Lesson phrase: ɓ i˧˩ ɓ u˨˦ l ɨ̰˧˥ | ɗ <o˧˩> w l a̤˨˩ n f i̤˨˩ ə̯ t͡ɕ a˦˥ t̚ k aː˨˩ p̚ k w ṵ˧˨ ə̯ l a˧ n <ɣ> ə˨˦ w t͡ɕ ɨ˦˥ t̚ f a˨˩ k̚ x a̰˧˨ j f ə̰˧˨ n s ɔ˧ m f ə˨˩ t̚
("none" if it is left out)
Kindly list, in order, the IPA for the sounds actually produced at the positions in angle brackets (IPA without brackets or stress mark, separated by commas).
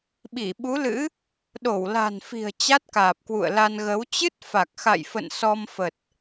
o˧˩, ɣ